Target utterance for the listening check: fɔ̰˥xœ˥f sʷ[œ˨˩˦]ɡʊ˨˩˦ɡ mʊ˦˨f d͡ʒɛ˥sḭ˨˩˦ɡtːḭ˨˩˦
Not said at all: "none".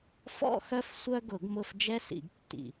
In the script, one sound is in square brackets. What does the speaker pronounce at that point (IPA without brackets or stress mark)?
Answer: œ˥